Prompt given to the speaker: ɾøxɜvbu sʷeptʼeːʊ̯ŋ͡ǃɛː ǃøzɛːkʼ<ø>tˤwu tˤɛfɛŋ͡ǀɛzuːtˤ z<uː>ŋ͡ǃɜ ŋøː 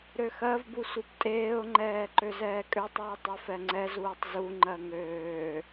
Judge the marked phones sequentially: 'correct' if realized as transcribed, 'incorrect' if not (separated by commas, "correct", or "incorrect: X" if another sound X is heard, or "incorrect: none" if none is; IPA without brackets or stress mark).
correct, incorrect: u